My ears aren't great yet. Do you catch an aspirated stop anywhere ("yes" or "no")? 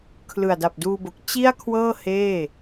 yes